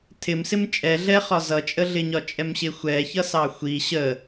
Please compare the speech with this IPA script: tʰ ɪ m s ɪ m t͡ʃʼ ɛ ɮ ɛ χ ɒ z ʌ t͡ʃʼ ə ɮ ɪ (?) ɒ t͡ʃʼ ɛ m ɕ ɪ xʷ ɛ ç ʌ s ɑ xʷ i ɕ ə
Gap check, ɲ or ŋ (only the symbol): ɲ